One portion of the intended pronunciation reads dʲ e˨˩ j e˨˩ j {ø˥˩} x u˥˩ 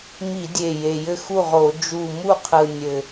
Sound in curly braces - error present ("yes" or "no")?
yes